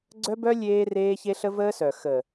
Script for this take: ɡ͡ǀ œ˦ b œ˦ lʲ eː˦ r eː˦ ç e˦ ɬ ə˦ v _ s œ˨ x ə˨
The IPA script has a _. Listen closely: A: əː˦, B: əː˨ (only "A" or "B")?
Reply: A